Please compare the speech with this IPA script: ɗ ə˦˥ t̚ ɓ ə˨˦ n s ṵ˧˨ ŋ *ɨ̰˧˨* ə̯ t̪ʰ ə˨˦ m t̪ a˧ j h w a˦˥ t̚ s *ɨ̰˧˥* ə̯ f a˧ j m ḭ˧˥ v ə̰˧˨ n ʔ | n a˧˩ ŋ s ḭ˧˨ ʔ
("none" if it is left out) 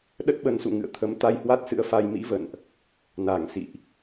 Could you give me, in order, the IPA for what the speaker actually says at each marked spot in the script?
ɨ̰˧˨, ɨ̰˧˥

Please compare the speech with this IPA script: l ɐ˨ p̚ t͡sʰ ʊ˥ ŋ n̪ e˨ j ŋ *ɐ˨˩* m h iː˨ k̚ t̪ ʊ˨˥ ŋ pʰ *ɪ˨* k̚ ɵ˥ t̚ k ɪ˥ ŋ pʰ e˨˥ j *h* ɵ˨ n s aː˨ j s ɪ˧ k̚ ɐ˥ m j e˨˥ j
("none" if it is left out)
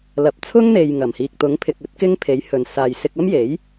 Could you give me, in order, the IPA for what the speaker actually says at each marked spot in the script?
ɐ˨˩, ɪ˨, h

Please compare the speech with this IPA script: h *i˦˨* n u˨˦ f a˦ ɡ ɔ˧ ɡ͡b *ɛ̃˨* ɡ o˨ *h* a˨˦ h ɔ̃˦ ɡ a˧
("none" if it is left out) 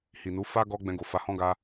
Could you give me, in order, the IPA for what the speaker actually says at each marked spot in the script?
i˨, ɛ̃˧, f

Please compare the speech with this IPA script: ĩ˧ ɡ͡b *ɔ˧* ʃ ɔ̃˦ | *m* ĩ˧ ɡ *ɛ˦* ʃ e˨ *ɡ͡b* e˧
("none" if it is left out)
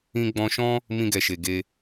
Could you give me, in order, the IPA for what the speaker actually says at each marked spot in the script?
ɔ̃˧, m, ɛ˨, ɡ

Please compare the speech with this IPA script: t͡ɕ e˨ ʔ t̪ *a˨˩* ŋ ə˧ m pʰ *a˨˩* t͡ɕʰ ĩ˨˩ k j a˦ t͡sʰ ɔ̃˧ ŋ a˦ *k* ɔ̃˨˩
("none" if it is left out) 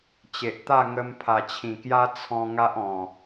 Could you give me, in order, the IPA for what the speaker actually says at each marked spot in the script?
a˥˧, a˨˩, ʔ

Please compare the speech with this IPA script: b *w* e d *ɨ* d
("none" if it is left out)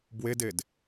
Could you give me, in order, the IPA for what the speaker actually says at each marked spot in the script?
w, e

